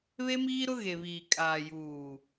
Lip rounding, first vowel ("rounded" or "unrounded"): unrounded